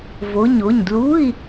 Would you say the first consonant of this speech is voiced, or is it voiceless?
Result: voiced